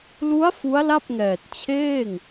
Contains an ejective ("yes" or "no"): no